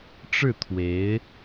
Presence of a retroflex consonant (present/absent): present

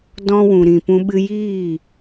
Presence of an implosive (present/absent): present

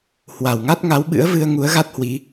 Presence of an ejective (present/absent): absent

